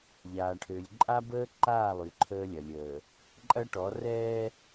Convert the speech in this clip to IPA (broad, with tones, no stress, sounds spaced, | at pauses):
ʎ aː˨ ʈʰ ø˨ lʲ ǃʼ a˦ b əː˦ ǃ aː˦˨ lˠ y˨ ǃʰ əː˦ lʲ ɐ˨ lʲ əː˨ | ǃʼ ɐ˦ ʈ ɔ˨˦ r ɛː˦